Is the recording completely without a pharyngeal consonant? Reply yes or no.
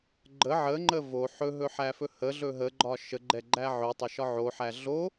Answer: no